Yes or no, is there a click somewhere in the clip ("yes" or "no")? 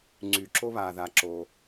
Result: yes